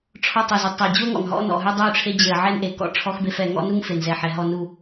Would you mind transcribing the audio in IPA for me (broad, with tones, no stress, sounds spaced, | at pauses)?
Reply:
ʈ͡ʂʰ ɔ˦ tˤ ʉ˨ z u˨ tˤ ɛ˨ ə̯ d͡ʑ u˦ ə̯ ŋ ɔ̰˨ ŋ ɦ ɔ̰˦ n ɔ̰˨ ɦ ʉ˦ dˤ ʉ˦˨ ʈ͡ʂʰ e˦ d͡ʑ e˨ ə̯ ʕ ɛ˦ n ʔ e˨ k ɔ̰˦ ʈ͡ʂʰ ɔ˦ x b e˦ f ɛ˨ ŋ ɔ̰˦ n u˦ ŋ f e˨ n z ɛ˨ ħ ɛ˨ ɦ ɔ˨ n u˨